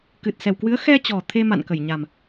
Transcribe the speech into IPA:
k ɨ˨˩ t̚ s ɛ˨˩ w k w ɨ˨˦ ə̯ x ɛ˧ t͡ɕ ɔ˨˩ t̪ʰ e˧ m a̰˧˨ n k ə˧˩ j ɲ a˨˩ m

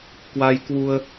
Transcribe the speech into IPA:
k w a˧ j k w u˧ ə̯

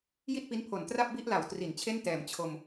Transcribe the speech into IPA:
j i˥˩ t̚ p i˦˥ n pʰ o˨˩ n t r a˥˩ p̚ b i˥˩ ʔ l a˨˩ w t r i˩˦ n t͡ɕʰ e˥˩ n t ɛː˨˩ m t͡ɕʰ o˧ m

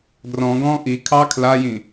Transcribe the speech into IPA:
d r ɔ̃ ɡ ɔ̃ ʔ i kʰ ɑ kʰ l a j ĩ

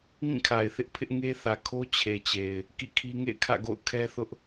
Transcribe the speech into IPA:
ŋ ĩ˦˨ kʰ a˨ ɪ̯ θ ɪ˦ ʔ pʰ ɪ˦ ʔ ŋ e˦ θ ä˨ kʰ o˦ t͡ɕʰ e˨ t͡ɕ e˨ ɪ̯ | k ḭ˦˨ kʰ i˦ ŋ ḛ˦˨ ɪ̯ kʰ ä̰˦˨ ɡ o̰˦˨ ʊ̯ kʰ ɛ˦ θ ʊ˦ ʔ

